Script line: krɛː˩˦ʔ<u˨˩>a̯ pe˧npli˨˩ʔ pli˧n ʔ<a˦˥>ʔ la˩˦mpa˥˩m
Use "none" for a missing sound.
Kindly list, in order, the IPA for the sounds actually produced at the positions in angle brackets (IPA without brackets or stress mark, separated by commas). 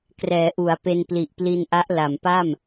u˩˦, a˦˥